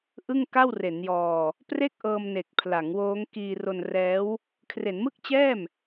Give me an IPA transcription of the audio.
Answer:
ʔ ɯ˥˩ ŋ k a˥˩ w r e˩˦ n j ɔː˧ | p r e˥˩ k̚ ʔ ɤː˧ m n e˨˩ k̚ pʰ l a˩˦ ŋ w oː˦˥ ŋ k iː˧ r o˧ n r ɛː˦˥ w | kʰ r e˩˦ n m ɯ˥˩ k̚ t͡ɕ ɛː˥˩ m

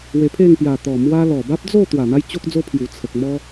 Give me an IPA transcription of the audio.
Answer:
w e˧ pʰ e˥˧ ŋ p j a˨˩ t̪ ɔ˨˩ m w a˧ l ɔ˨˩ b a˦ p̚ d͡z o˥˧ t̪ w a˨˩ n̪ a˦ j t͡ɕ o˦ k̚ d͡z o˦ pʰ j u˨˩ t͡sʰ ə˨ k̚ m ɔ˦

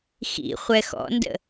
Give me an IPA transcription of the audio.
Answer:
x ḭ χʷ ɛ x ɔ̰ n d ə̰

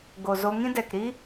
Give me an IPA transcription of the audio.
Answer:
ɡ o˨ z o˧ ŋ ĩ˦ d ɛ˨ k ɾ i˦

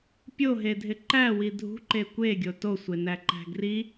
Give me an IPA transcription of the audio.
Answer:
pʲ o ɦ e dʱ ɪ ǃ æ w i dʱ ṳ ǃ e kʷ e ɡʲ o t o sʷ e n æ ǃ æ̤ ɡ r i

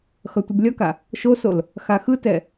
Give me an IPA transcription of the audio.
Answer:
x ʌ tʷ i b lʲ ʌ k a | ʃ o s o l | x a x ɯ t ɛ

